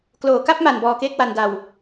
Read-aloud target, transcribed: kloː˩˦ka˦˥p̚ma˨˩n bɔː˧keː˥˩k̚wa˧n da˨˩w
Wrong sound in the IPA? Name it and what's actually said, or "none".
none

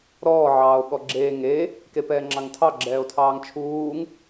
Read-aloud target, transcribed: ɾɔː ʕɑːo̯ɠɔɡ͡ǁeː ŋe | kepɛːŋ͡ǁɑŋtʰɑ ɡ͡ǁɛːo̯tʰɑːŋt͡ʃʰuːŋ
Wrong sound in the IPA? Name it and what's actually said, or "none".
none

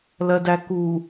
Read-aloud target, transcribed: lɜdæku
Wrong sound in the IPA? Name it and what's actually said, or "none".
none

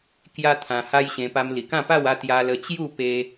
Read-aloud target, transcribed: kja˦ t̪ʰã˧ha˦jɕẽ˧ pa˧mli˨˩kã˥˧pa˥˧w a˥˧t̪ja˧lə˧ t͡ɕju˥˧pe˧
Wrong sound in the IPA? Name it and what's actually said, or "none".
none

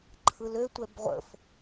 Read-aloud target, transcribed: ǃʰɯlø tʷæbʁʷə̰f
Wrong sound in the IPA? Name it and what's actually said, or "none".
æ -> ɛ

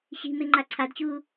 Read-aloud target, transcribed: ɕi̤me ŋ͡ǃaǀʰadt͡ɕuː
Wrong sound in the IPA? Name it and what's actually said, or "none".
none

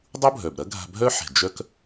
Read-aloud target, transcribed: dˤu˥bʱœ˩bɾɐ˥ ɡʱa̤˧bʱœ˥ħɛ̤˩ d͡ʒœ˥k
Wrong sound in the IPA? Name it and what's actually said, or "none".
none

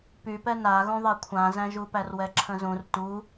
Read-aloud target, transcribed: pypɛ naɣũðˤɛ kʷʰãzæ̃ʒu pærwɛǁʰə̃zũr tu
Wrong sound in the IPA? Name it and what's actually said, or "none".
none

